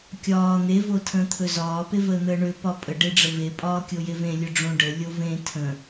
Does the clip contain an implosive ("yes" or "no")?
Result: no